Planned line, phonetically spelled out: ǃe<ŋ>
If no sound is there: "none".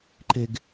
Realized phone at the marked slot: ɡ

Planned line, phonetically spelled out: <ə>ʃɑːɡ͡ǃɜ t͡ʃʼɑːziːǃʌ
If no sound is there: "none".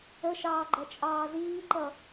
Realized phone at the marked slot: ə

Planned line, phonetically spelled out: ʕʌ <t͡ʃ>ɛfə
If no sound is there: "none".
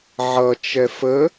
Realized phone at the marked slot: t͡ʃ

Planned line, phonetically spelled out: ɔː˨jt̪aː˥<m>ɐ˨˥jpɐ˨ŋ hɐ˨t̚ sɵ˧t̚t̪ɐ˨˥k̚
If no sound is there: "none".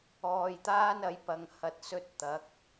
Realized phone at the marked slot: n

